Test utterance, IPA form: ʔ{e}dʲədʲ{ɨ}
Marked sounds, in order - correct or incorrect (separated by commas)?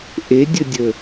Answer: correct, incorrect